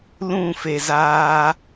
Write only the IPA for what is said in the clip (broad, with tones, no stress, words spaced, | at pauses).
lũ˦˨fe˨zaː˧